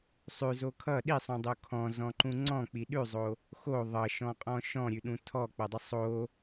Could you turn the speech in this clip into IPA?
sˤ ʉ z o kʰ ʌ ɗ i sˤ ũ dˤ o kʰ ɔ̃ z ɔ̃ ǃ ũ ŋ͡ǀ ɔ̃ k͡p i ɗ ʉ zˤ o | x o ðˤ ʌ ʃ ɔ̃ qʼ ɔ̃ ʃ ɔ̃ ɾʲ ʉ ɗ ũ tʰ ɔ k͡p ʌ dˤ ə sˤ o

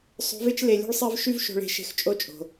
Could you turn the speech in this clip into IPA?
sˤ o̤˧˥ v e˥ t͡ʃ l e˧ lʲ o̤˥ ɭ sˤ e˥ v ʃ y˥ v ʃ o̤˧ ɭ e̤˧ ʃ e̤˧ x t͡ʃʼ o˧˥ t͡ʃʼ o̤˩

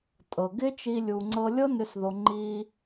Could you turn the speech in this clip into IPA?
tʼ ɤ˨ ɡ ɪ˦ t͡ʃ i˦ lʲ u˧ ŋ͡ǀ ɤ˧ lʲ ɤ˦ n ø˧ s ð o˦ ŋ͡ǃ i˦

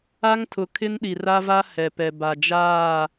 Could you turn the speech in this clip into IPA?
a˦ ŋ tʰ ʊ˨ kʰ ɪ˦ n ɗ i˨ r a˦ v a˦ h ɛ˨ p ɛ˨ b a˨ d͡ʒ aː˦˨

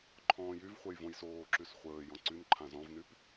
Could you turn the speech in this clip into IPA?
ǃʰ ɔ̃ː j y v χʷ ɛ j v õ j s oː ǁ y s χʷ əː j ɔ̃ ǀ y n ǃʰ ã z ɔ̃ v n y p

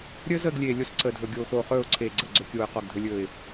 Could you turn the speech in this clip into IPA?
ɾʲ əː˦ z əː˦˨ ɡ lʲ eː˨ lʲ o˦ s ǀ əː˨ dʱ ɵ˨ ɡʲ oː˨ x oː˨ χ ɵː˦˨ ʊ̯ ǀʰ eː˨ ɡ͡ǀ ə˨ ɡ͡ǀ ɵ˨ kʲ oː˨ ɪ̯ q ɔ˦˨ ɡ dʱ ɵ˦ lʲ ɵː˦˨ ɪ̯

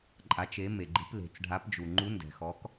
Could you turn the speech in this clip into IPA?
ǃʼ a˩˧ t͡ʃ e˩˧ m e˩ ɡ͡ǃ i̤˩˧ p l e̤˩ t͡s ɖʱ a˩˧ p d͡ʒ u˩ ŋ͡ǃ u˩˧ n d ɛ̤˩ x ɔ˩˧ k

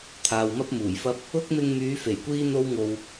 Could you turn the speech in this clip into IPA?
t̪ʰ aː˨ w m ɐ˥ p̚ m uː˨˩ j f ɐ˥ p̚ | ʊ˥ k̚ m ɪ˧ ŋ m yː˨˧ f e˨˩ j kʷ iː˥ n̪ o˥ w ŋ o˧ w

